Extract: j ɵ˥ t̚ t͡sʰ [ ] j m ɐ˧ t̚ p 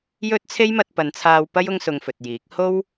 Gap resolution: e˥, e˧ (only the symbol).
e˥